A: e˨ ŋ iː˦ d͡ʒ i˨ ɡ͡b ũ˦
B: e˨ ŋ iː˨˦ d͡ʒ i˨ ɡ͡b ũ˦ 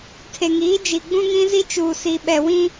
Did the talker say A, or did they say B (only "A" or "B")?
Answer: B